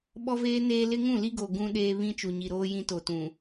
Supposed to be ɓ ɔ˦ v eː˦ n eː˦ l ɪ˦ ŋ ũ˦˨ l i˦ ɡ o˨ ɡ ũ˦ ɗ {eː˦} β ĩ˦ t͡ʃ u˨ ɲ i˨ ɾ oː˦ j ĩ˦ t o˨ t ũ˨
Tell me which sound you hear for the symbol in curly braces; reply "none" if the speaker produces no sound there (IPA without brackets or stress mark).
eː˦